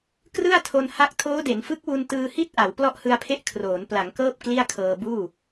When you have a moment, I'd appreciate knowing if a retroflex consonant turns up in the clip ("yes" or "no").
no